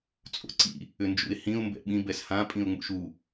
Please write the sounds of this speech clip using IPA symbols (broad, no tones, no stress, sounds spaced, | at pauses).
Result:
t͡sʼ o̰ ǀ ḭ | ʏ n d͡ʒ ṵ ɪ̯ h ĩ ʊ̯ m b ɛ̰ ɓ ĩ b ɛ s h ã pʼ ĩ ʊ̯ ŋ͡m ṵ ʃ u